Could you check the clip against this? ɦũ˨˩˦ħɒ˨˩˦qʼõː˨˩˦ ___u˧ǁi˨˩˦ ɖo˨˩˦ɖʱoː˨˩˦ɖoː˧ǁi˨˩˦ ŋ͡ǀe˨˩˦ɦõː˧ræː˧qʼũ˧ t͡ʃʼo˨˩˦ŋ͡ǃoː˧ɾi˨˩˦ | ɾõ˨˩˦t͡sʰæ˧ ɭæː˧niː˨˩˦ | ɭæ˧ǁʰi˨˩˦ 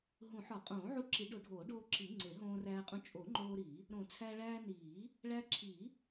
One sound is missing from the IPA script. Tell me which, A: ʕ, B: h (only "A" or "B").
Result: A